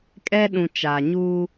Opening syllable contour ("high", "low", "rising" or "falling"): high